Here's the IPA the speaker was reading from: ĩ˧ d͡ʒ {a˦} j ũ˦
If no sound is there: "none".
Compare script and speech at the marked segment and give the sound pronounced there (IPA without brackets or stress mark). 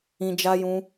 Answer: a˦